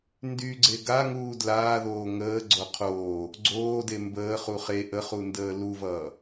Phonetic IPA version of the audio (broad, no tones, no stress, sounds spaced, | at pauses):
n d y ɡ͡ǀ e ɡ a ŋ uː d l aː ð oː ŋ əː ɡ͡ǀ o qʰ oː | ɡ͡ǀ oː d e m b əː χ u χ e ʔ ə χ u n d əː l u v ʌː